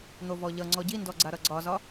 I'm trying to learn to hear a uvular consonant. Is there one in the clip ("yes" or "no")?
no